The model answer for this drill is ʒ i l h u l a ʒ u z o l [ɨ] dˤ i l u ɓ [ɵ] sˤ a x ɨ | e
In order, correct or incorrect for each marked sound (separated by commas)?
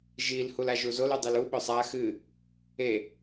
incorrect, correct